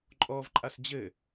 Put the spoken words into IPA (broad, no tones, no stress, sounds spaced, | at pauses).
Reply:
ǃʼ ɔ v ǃʼ a s d͡ʑ ɘ